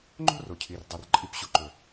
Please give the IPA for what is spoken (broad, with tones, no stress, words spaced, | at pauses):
ŋ͡ǃo̤˦ ro˨cʰi˨rdˤo˨r ǃʼi˨pɕu˨ ǃɵ˨